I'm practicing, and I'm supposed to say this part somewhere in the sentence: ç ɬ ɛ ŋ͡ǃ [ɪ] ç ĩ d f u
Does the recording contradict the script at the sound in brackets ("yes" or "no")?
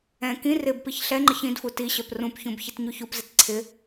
no